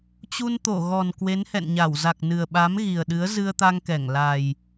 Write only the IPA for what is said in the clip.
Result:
t͡ɕ u˧ n t̪ o˧˩ ɣ ɔ˨˩ n k w e˨˦ n h ɛ̰˧˨ n ɲ a˧˩ w z a˨˩ k̚ n ɨ˨˩ ə̯ ɓ a˨˦ m ɣ i˨˩ ə̯ ɗ ɨ˨˦ ə̯ z ɨ˧ ə̯ t̪ a˧ ŋ k ɛ˧˩ ŋ l a˨˩ j

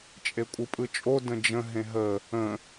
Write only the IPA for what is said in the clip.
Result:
t͡ʃʼ e kʷʼ ɯ pʼ ɯ t͡ʃʼ o d ə̃ d͡ʒ ə̃ ɦ ẽ ɦ ə | ə̃

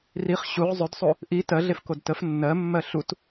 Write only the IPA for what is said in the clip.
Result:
r i χ ɕ u ʁ zˤ ɵ d sˤ o | ʔ i t ɜ ɮ e f k o d t ə f nː ɜ mː ɜ ɬ u t

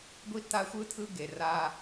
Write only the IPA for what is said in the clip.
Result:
ɡʷ i˦ t a˦ xʷ ɯ˦ tʰ ɯ˦ ɡ e˨ r a˦

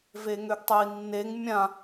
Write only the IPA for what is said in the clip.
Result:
v e ŋ ø ɡ tˤ ø i̯ nː e ŋ mʲ ã

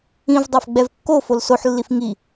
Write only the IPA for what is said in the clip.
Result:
ĩ v dˤ a f ɡ͡b ɛ v kː o f o l s o ħ lː i f ŋ i

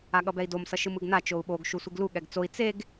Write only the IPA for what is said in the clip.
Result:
a ɠ ʌ b ɛ i̯ d o m s ʌ ʃ ɯ m ɯ ɡ n a t͡ʃ o u̯ ɓ o ɡ ʃ u sʷ i ɡ l u ɠ ɛ ɡ t͡s o i̯ t͡s e ɡ

